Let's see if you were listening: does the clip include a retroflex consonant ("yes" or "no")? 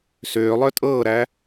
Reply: no